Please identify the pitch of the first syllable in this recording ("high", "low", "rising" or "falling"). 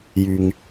low